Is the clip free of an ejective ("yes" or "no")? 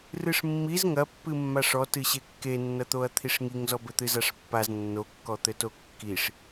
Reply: yes